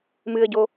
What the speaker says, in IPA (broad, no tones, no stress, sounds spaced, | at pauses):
m ɨ ə̯ ɟ o